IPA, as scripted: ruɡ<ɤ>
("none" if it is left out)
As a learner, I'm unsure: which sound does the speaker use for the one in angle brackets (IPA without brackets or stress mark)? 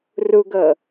ɤ